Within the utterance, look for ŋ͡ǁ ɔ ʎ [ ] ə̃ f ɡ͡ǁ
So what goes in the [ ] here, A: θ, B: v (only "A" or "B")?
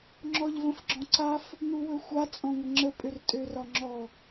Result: B